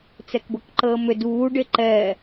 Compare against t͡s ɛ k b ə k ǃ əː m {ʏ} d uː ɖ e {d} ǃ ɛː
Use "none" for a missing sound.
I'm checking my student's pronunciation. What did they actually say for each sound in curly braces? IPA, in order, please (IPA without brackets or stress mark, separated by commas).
ʏ, none